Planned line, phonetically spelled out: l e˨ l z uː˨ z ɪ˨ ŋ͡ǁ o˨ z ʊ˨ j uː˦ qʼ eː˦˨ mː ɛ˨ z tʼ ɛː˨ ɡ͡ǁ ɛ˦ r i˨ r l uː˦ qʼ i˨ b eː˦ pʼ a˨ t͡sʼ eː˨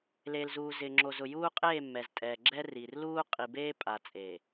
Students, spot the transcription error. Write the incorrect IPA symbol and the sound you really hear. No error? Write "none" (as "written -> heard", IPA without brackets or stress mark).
none